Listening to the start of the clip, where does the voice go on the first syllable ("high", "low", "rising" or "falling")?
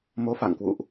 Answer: rising